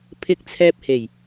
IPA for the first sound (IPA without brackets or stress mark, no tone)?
pʰ